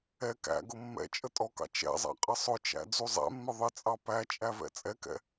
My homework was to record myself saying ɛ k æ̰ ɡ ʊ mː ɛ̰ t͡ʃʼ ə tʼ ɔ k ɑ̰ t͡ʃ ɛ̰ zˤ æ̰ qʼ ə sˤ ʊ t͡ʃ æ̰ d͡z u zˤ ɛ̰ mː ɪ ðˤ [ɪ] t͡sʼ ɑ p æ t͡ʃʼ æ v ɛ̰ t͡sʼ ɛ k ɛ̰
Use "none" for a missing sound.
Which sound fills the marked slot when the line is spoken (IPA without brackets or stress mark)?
ɪ